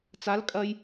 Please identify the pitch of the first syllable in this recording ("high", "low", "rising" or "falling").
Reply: rising